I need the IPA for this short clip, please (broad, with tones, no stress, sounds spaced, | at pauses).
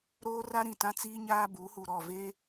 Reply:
ɾ oː˦ r a˦ ɾ ĩ˨ t ã˦ t͡s iː˦ ɲ aː˦ b u˨˦ h u˨ ɾ ɔ˦˨ v e˦